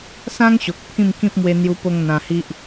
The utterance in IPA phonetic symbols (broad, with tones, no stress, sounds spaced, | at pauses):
s ã˦ ŋ ɕ o˨ k̚ pʰ ĩ˥˧ m k ĩ˦ p̚ m w e˧ n̪ j u˧ p o˧ ŋ n̪ ã˧ h i˦ ʔ